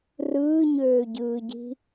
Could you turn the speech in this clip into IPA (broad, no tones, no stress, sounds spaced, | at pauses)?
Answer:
r ɯː ɲ øː ɟ ɯː ɟ i̤